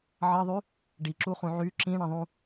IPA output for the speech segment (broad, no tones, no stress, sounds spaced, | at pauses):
ʕ ʌ ðˤ y | ɖ i ǁ u χ ũ ʕ y ǁ ĩ ɳ ə̃ ðˤ ũ